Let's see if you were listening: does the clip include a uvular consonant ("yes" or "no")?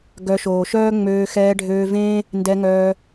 no